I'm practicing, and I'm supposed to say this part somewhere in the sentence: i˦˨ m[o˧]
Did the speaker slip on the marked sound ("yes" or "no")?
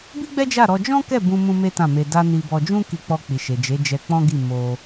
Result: no